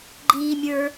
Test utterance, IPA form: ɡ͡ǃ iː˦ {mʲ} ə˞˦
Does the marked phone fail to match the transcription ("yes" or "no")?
no